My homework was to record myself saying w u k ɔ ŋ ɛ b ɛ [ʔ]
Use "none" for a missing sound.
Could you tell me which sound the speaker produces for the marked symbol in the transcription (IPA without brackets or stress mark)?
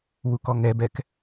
k